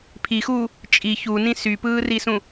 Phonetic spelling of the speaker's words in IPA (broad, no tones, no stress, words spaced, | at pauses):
pʰixuː | t͡ʃʼi çunĩ sypɯːrisũ